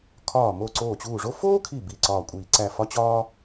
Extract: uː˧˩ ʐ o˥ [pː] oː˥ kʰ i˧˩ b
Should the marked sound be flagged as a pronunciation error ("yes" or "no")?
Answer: yes